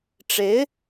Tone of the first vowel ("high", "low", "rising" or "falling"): rising